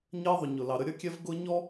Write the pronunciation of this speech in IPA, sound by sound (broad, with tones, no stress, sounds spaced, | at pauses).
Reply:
ɲ ɜ˦ ðˤ ʊ˨ ɲ ʊ˨ l ɑ˨ ɾ ə˦ ɾʲ ʌ˦ kʲ ɛ˦ v ɡ ʊ˦ ɲ ɔ˦